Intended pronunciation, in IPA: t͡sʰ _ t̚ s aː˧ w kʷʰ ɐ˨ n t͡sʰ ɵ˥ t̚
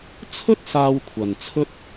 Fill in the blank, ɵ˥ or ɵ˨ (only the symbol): ɵ˥